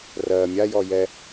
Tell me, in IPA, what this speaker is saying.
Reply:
r ɜ mʲ a j ɔ j ɛ

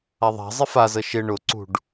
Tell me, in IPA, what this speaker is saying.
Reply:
a ðˤ a̤ zˤ ɪ f a z ə ʃ ɪ ɳ ʊ ǀ ṳ ɖ

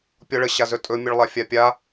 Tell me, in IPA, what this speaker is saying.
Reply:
pʲ ɔ ɭ ə ɕ a z ɵ tʼ ɵ mʲ ə ɭ lˠ a fʲ a pʲ a

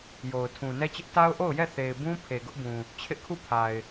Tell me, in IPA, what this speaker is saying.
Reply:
j o˨ ʊ̯ tʰ ũ˨ n ɛ˦ t͡ɕ ɪ˦ ʔ t a˦ ʊ̯ ʔ o˦˨ ʊ̯ j ɛ˦˨ θ e˨ ɪ̯ b ũ˦ pʰ e˨ ɡ ʊ˦ ʔ b ũ˨ | t͡ɕʰ ɪ˦ ʔ kʰ u˦˨ pʰ a˨ ɪ̯

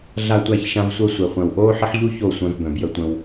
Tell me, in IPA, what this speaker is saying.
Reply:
ɮ a˧ tʷ æ˧ ç ʃ ã˧ v sʷ œ˧ sʷ ɛ˨ χʷ œ̃˨ w ʔ oː˦ ħ ə˦ ħ ʎ u˦ ç o˦˨ sʷ œ̃˧ v b œ̃˨ b j ə˧ tʷ ə̃˧ w

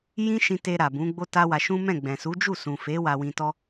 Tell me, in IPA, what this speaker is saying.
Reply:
j ĩ˦ ʃ ĩ˧ t e˧ ɾ a˨ b ũ˨˦ ɡ͡b o˦ t a˦ w a˧ ʃ ũ˦ m ɛ̃˦˨ ɡ͡b ɛ̃˨ s u˨˦ d͡ʒ u˦˨ s ũ˨ f e˨˦ w a˧ w ĩ˧ t ɔ˦

